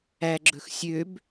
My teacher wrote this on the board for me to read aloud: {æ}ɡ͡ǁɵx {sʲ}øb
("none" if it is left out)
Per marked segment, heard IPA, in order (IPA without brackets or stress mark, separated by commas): æ, sʲ